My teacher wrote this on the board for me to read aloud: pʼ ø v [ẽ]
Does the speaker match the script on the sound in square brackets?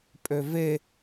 no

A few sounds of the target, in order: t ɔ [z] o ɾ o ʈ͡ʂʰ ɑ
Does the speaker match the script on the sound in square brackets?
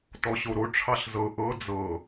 no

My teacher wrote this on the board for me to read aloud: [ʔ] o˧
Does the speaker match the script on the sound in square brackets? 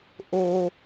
yes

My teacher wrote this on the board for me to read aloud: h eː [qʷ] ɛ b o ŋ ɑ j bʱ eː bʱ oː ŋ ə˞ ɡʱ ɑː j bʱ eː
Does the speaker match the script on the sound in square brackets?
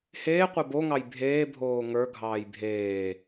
yes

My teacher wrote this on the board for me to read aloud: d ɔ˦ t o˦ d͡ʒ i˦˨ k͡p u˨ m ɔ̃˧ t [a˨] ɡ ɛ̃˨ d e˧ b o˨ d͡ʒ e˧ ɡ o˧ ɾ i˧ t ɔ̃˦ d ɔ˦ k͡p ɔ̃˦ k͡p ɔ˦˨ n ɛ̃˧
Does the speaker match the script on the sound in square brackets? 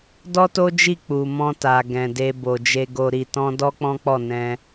yes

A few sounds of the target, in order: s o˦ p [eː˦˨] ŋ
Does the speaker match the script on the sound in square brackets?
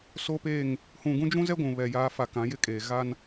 yes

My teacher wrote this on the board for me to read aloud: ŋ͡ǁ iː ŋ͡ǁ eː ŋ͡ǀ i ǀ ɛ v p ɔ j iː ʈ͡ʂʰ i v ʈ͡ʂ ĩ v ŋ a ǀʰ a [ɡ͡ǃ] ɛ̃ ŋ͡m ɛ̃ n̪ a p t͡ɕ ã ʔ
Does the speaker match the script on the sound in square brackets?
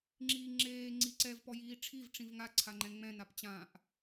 no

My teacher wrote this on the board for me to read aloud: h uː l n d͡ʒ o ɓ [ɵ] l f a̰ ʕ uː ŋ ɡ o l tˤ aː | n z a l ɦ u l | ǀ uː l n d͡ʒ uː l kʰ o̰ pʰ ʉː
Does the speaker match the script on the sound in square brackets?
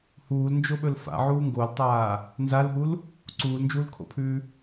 yes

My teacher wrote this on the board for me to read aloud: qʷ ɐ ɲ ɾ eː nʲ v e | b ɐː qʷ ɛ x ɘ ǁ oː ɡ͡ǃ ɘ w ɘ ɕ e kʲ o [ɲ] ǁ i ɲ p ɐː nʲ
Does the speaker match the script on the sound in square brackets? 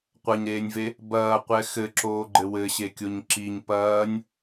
yes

